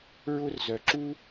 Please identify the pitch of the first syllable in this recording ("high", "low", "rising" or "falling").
high